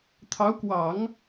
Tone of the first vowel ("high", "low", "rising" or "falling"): rising